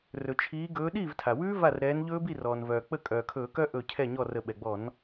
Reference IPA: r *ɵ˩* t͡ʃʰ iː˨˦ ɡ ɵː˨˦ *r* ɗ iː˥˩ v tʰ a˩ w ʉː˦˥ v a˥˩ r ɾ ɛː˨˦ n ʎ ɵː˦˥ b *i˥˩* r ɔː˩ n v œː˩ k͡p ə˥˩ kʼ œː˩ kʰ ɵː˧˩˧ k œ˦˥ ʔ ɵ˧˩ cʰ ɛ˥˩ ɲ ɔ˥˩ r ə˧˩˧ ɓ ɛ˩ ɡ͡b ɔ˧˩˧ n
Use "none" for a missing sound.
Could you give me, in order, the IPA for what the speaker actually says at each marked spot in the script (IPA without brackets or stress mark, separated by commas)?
ɵ˩, none, i˥˩